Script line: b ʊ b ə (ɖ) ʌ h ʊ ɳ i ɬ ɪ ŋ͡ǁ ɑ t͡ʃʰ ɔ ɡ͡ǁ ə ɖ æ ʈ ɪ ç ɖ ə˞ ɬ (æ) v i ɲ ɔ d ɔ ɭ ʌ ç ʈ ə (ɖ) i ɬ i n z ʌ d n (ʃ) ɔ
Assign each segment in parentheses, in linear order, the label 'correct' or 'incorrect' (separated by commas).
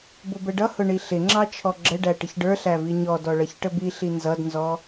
correct, correct, incorrect, incorrect